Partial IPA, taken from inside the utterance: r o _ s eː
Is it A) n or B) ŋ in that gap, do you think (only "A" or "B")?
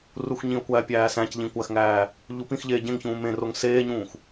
B